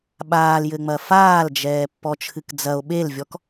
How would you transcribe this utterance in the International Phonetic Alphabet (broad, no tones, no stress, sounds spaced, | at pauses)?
ɓ aː l j ɘ ŋ͡m ɐ f aː l d͡ʒ ɛː pː ɔ t͡ʃʰ ɨ k d͡z ɐ o̯ ɓ e l vʲ ɔ k